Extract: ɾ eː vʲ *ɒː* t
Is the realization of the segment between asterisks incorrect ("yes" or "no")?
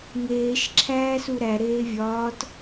no